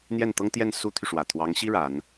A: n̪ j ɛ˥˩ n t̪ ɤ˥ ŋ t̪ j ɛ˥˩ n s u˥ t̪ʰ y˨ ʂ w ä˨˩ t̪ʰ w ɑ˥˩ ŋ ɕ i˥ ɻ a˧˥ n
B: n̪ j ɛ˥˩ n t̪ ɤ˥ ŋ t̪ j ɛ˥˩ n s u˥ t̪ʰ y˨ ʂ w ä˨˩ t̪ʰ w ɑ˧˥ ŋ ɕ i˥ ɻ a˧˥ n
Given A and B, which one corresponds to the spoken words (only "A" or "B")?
B